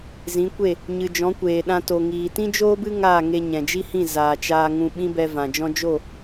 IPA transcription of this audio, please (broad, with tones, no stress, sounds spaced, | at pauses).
z ĩ˨˦ kʷ e˦˨ | ɲ ɨ˨ d͡ʒ ɔ̃˨˦ kʷ eː˨ ɗ ã˧ t o˨ ŋ iː˨ t ĩ˦ d͡ʒ oː˦ b ɨ˦ ŋ aː˦˨ ŋ e˧ ɲ ɛ̃˨ d͡ʒ i˦ h ĩ˦˨ z aː˨ t͡ʃ aː˧ ŋ ũ˧ ɓ ĩ˦ b ɛ˧ v ã˨ d͡ʒ ɔ̃˦ d͡ʒ o˦˨